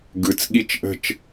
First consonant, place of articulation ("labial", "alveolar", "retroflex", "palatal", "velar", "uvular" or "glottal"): velar